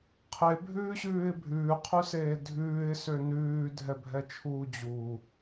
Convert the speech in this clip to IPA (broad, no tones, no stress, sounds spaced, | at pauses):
qʰ e bʱ ʉː ɕ ʉː ɪ̯ bʱ ʉː qʰ ʉ s eː dʱ ʉː ɪ̯ s ø n ʉː dʱ ɛ bʱ ɛ t͡ʃʰ uː d͡ʑ u